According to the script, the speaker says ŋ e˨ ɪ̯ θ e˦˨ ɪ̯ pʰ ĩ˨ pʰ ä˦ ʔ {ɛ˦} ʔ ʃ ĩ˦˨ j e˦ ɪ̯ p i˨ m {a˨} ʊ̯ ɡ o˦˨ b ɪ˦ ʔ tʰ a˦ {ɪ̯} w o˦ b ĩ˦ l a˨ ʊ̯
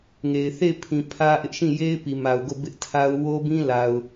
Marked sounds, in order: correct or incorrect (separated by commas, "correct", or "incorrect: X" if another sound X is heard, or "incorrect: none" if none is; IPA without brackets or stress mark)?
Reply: incorrect: ɪ˦, correct, incorrect: ʊ̯